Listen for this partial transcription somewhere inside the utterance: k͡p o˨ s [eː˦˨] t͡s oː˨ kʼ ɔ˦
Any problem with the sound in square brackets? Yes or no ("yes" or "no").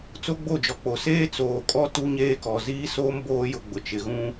yes